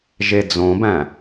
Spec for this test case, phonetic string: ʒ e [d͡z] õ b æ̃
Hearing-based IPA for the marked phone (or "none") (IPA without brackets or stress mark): d͡z